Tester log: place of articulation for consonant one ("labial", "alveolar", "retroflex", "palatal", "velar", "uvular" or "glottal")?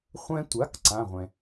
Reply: uvular